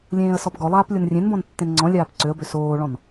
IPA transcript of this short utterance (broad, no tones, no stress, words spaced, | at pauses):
lʲẽːə̯sɔpɡɔlˠaːp lʲonrʲẽnbɔ̃n tːẽnŋ͡ǀɔ̃lʲaːp ǀøə̯bø soːɭɔ̃n